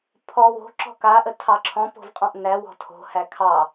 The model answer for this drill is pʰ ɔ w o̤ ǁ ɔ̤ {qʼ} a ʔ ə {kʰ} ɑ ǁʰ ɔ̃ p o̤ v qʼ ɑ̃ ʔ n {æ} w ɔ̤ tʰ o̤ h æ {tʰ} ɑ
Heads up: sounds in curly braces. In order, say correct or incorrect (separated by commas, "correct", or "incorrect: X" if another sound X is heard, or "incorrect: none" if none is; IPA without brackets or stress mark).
incorrect: k, incorrect: tʰ, correct, incorrect: kʰ